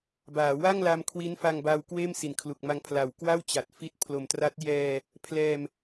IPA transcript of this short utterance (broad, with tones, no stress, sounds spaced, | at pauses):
b aː˩˦ w a˥˩ ŋ l a˧ m kʰ w i˦˥ n f a˧ ŋ b a˧ w k w eː˥˩ m s i˩˦ n kʰ l u˨˩ k̚ m a˧ ŋ pʰ l a˨˩ w k w a˥˩ w t͡ɕ a˨˩ t̚ f i˦˥ t̚ pʰ l o˨˩ m t r a˦˥ t̚ j ɛː˧ | pʰ l ɛː˧ m